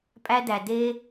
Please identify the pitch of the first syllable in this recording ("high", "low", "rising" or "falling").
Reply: high